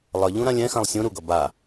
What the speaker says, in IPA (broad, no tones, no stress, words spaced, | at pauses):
lˠʌ ʎũɾãlʲɛ̃xãlˠ sʲũ ɾuɡʌ ba